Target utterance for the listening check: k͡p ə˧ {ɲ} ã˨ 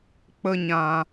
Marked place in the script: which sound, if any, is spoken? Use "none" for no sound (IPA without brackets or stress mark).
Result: ɲ